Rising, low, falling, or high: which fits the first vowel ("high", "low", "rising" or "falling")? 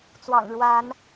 low